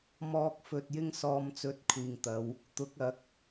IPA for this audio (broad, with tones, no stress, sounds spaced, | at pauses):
m ɔː˨ k̚ f ɵ˨ t̚ j ɪ˧ ŋ s ɔː˨ m t͡s ɵ˨ t̚ kʷʰ iː˨ ŋ t̪ ɐ˨˧ w | t̪ ʊ˨˥ k̚ ɐ˨˥ k̚